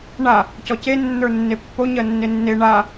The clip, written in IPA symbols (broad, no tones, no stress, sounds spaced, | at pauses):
ɳ a | c ɔ c e nː ə˞ nː e pː o ɲ ɜ nː e nː e ɳ a